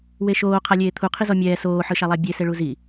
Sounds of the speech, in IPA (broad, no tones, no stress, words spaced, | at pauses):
weʃoː qʰalʲeːt̪ʰu qʰizɔmʲɛː soː ħɯʃalˠabʲe seɭuzi